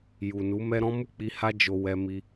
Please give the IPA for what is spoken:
j u˨ n u˨˦ m ɛ˦ ɾ ɔ̃˦ m u˦˨ k͡p i˧ h a˦ d͡ʒ o˧ w ɛ˧ m i˧

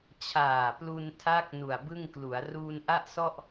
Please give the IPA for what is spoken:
t͡ɕʰ aː˨˩ p l u˧ n tʰ a˦˥ k̚ n u˨˩ a̯ b ɯ˥˩ ŋ k l u˩˦ a̯ r uː˧ n ʔ a˥˩ ʔ s ɔ˥˩ ʔ

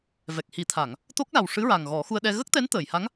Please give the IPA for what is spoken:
v ɛ˨˩ k̚ h i˨˩˦ t̪ʰ a˨˩˨ ŋ | t̪ o˦˥ k̚ l a˨˩ w ʂ ɨ˧˥ ɹ a˨˩ ŋ ɣ ɔ˨˩˦ x u˧ ə̯ ɗ ɛ˧ ɣ ə˦˥ k̚ t̪ ɛ˧˥ n t̪ əː˨˩˨ j h a˧˥ ŋ

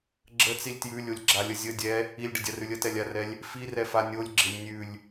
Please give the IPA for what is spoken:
ɡ͡ǁ ə t͡s i lʲ t j ʉ lʲ o lʲ ɡ͡ǁ a lʲ ə zʲ ə dʲ ɛ | i lʲ ɖ ɪ dʲ a r ʉ lʲ ə t ɛ lʲ a r ɛ lʲ | f i r ɛ f a nʲ o lʲ ɡ͡ǁ ɪ lʲ nʲ ʉ lʲ

